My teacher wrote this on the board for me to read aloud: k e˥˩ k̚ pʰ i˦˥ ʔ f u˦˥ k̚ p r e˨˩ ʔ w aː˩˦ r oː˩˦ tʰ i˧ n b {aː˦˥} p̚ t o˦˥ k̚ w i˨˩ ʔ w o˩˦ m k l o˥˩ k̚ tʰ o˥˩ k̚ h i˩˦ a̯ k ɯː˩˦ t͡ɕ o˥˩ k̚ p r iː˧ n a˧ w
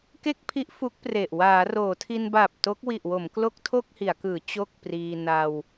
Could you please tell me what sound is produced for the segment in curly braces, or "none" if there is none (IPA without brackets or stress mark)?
aː˨˩